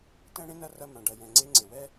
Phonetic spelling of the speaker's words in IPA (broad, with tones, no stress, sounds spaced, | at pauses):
t ɛ̃˦ ɽ ẽ˦ n ɐ˦ r ɐ˧ m ã˨ ɖ ɐ˨ j ɛ̃˨ ŋ͡ǀ e˧ ŋ͡ǀ e˨ w ɛ˦